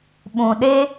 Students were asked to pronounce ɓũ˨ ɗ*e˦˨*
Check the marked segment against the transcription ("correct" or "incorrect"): incorrect